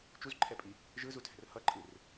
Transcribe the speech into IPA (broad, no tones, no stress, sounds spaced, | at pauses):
t͡ʃ u z ǃʰ ɛ pʼ i | ʒ ɯ z u tʰ ɛ̤ r h ʌ ǃʼ ɯ r